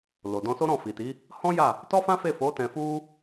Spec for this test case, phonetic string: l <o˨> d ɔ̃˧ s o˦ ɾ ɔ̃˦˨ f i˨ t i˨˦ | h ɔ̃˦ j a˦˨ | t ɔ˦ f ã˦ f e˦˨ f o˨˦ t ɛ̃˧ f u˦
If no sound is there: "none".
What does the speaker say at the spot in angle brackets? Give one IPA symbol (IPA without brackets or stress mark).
o˨